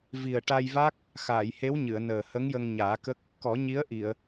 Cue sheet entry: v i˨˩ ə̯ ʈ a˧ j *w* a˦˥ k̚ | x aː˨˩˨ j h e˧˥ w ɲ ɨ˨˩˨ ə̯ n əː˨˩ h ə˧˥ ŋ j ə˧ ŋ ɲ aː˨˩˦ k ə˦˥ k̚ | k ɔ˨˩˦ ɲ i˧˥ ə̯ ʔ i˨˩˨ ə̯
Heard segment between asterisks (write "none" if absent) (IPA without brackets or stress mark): v